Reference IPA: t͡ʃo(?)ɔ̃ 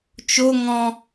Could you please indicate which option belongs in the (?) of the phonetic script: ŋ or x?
ŋ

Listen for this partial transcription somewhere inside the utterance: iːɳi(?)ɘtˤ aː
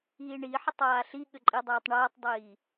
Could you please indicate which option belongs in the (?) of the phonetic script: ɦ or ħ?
ħ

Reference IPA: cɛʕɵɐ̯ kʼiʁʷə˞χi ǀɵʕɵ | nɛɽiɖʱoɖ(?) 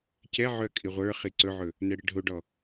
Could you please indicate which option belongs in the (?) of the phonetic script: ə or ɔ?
ɔ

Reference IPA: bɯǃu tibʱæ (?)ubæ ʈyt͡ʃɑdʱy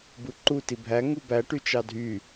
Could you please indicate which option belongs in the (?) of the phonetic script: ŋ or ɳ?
ŋ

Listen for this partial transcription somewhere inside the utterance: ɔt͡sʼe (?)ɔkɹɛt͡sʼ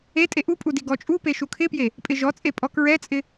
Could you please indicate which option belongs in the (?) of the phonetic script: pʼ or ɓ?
pʼ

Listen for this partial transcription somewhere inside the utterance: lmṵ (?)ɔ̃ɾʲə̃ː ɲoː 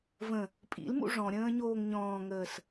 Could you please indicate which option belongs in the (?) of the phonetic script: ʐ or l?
ʐ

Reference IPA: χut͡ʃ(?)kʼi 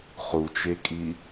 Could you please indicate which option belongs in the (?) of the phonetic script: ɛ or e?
e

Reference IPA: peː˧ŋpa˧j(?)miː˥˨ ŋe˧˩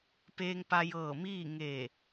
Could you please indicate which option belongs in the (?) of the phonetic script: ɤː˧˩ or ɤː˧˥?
ɤː˧˩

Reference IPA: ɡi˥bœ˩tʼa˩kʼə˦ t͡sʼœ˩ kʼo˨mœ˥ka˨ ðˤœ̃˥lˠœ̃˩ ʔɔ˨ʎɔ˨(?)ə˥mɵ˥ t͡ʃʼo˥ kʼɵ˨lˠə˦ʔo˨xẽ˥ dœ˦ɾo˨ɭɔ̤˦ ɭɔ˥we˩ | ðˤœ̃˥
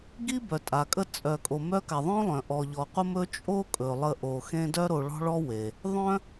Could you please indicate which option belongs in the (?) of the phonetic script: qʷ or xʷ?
qʷ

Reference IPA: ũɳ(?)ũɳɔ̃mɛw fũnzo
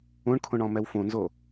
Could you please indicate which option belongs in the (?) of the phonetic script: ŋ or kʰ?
kʰ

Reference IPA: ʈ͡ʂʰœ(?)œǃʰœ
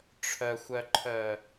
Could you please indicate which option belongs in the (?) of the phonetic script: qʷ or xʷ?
xʷ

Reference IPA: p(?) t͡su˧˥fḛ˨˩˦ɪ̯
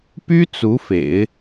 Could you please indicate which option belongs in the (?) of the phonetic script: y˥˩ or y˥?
y˥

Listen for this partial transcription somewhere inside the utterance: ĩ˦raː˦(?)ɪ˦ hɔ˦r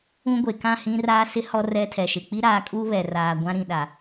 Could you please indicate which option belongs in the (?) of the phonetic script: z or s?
s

